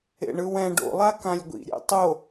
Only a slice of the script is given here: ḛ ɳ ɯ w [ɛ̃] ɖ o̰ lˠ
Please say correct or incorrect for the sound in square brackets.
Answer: correct